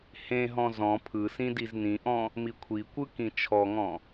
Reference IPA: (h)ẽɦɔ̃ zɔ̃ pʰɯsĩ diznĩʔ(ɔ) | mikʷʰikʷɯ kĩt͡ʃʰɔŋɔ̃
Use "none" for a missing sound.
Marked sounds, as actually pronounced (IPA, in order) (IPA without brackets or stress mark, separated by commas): h, ɔ̃